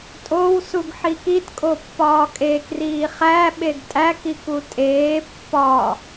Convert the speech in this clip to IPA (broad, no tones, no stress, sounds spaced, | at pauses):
tʼ o w s u ɡ ħ i k i t kʼ o pː ɒː kʼ e k r iː χ æ ɓ e ɡ tʼ æ k i k u tʼ eː pː ɒ